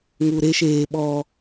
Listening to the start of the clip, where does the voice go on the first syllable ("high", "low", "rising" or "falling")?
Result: low